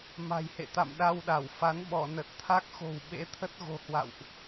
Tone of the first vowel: low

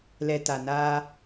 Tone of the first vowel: low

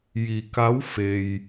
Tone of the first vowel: low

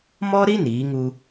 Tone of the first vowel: high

